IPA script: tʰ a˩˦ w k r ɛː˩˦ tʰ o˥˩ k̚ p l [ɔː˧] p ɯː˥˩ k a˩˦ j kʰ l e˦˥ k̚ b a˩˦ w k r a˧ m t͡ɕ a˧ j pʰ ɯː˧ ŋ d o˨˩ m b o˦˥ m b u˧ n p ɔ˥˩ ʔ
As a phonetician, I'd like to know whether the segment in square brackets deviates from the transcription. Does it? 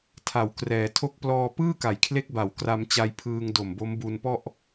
no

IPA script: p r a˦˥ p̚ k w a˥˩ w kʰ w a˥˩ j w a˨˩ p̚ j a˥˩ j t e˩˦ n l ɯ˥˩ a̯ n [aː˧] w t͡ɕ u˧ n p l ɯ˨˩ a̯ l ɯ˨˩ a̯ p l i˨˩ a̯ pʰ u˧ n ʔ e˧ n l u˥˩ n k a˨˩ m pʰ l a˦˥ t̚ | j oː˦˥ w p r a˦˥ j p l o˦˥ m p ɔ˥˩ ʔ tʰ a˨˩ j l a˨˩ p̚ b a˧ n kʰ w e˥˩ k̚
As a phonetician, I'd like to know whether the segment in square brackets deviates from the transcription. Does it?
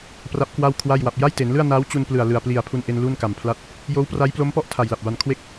yes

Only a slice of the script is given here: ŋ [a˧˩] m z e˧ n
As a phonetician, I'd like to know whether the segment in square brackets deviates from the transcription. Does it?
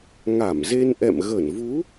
no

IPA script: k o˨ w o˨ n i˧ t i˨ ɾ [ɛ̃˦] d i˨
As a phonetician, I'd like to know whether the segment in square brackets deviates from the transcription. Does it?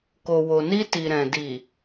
yes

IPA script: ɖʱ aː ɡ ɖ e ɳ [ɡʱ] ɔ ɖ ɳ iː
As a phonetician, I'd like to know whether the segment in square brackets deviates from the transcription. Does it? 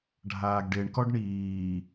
yes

